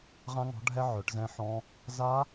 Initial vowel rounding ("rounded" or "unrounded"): unrounded